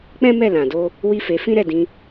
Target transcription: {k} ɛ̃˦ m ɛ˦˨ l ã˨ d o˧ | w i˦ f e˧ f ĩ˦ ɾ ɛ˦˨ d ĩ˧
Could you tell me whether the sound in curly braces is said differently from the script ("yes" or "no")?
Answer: yes